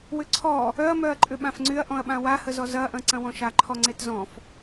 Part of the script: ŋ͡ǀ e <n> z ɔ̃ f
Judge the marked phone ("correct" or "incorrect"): incorrect